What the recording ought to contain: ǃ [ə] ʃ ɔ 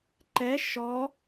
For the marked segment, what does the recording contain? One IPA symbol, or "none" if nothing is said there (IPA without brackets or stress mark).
ɛ